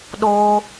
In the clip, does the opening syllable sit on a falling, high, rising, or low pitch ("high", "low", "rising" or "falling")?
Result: high